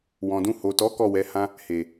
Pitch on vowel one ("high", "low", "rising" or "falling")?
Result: low